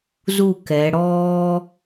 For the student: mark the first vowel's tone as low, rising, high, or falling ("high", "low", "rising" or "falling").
falling